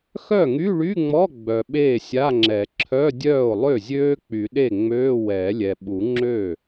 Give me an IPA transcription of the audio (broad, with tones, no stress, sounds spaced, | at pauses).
x œ˥˩ ŋ y˧˥˧ ɭ y˧˥˧ ŋ͡m ɔ˧˥˧ ɡ͡b œ˨ ɓ eː˥˩ sʲ a˧˥˧ ŋ͡ǁ ɛ˨˩˦ ǁʰ œ˧˥˧ dʲ œː˥˩ o̯ lˠ ø˥˩ zʲ øː˦˥ k͡p y˨˩˦ ɗ e˥˩ ŋ͡m øː˧˥˧ w ɛ˨˩˦ lʲ ɛ˨ ɓ u˨˩˦ ŋ͡ǁ ø˥˩